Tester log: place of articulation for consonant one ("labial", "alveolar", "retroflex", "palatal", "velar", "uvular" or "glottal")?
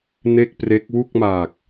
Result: alveolar